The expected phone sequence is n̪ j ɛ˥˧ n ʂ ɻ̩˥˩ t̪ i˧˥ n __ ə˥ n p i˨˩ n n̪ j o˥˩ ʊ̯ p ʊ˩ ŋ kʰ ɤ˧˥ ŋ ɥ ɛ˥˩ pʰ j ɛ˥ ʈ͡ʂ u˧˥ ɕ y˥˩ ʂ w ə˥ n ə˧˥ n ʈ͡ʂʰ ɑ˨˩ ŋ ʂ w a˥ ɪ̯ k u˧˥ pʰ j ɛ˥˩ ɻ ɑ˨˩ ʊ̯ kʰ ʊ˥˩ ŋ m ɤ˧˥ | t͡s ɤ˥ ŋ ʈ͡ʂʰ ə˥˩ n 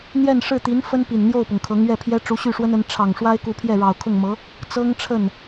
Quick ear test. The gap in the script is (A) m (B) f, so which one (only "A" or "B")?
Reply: B